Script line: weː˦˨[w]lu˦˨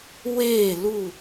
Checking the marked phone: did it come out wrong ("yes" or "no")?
yes